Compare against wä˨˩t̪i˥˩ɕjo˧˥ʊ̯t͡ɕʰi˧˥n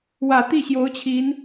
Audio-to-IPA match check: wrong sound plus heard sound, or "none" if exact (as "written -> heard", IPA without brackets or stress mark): none